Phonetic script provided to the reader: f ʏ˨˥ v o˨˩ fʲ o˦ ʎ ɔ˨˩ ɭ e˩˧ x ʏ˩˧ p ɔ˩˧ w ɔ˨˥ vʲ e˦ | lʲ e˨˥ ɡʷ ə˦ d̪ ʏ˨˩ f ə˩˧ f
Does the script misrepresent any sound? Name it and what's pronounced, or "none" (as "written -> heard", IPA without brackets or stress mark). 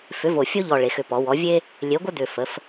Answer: none